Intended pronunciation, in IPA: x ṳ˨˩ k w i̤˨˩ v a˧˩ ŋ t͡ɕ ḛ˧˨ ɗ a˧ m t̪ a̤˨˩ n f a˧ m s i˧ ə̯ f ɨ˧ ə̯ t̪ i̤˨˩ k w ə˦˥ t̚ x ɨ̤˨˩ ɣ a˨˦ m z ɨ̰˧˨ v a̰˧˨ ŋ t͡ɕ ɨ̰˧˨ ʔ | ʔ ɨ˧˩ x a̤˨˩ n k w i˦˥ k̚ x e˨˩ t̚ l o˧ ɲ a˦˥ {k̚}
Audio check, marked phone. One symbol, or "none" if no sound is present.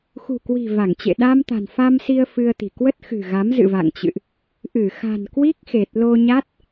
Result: t̚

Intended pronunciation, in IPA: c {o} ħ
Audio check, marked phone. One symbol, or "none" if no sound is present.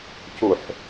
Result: u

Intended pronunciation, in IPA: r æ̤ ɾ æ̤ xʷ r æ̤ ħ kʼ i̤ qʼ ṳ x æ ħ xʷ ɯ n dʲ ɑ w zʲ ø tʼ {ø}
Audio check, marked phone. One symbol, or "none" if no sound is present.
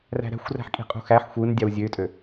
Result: ø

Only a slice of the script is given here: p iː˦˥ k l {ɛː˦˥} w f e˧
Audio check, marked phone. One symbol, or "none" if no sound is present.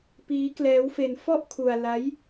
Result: ɛː˦˥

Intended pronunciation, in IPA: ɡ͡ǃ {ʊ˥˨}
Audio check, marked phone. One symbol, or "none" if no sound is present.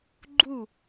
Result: u˥˨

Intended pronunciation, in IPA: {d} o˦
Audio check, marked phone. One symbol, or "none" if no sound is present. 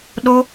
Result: ɗ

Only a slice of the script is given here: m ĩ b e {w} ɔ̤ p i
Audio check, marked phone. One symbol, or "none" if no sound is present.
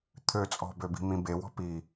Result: w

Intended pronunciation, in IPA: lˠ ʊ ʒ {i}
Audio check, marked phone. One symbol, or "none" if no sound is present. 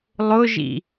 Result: ḭ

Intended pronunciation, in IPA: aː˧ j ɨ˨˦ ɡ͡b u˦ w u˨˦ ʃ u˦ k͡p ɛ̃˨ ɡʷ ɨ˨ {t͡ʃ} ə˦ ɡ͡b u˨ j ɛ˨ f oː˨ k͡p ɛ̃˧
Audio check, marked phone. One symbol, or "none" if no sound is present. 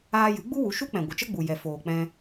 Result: t͡ʃ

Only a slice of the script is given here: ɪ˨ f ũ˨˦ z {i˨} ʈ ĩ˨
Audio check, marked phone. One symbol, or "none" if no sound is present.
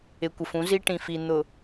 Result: i˦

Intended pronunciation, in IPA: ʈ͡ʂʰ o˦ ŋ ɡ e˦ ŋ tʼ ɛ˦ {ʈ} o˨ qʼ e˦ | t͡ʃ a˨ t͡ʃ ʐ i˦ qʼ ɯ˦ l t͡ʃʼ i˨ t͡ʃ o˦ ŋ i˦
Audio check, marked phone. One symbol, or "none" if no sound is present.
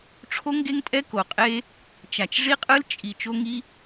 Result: k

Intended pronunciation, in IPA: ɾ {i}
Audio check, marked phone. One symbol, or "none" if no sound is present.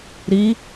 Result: i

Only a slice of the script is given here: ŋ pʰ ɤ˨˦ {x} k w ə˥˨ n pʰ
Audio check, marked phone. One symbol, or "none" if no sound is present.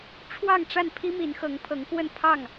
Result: ŋ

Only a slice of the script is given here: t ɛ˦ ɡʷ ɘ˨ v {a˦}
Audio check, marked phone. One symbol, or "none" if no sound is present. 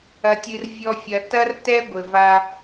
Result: a˧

